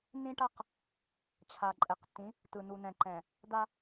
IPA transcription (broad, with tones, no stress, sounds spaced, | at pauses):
n ĩ˦ ʈ a˦ q | t͡ɕʰ a˨ ǃʼ ɛ˨ q tː ĩ˨˦ | t ɯ˨ n u˨ n ɛ̃˨ ǃ ɛ̃˨ | d̪ a˦